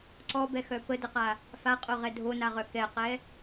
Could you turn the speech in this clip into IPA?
ǀɔbɛxœ pədəqa | faqʼoʁɛ dʱonaʁœ kɛqɛ

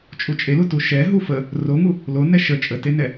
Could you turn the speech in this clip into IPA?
t͡ʃʼut͡ʃʼelutu ʃɛ ɦufə | roŋu | lonɛ ʃə t͡ʃʼətenɛ

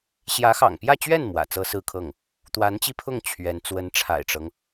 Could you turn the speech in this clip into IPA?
ɕjä˧˥xɑ̰˨˩ŋpjä˥˧t͡ɕɥɛ˥˩n mwä̰˨˩t͡sɤ˥sɹ̩˥˧kʰɤ˥˩ŋ | t̪wa˧˥nt͡ɕi˥˧pʰʊ˥˩ŋ t͡ɕʰɥɛ˧˥n t͡swə˧˥nʈ͡ʂʰa̰˨˩ɪ̯ʈ͡ʂɤ˦ŋ

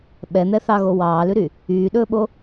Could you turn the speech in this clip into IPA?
ɓɛn̪ɛθɑɣo wɑːlʉɾy | yːɗɵːɓo

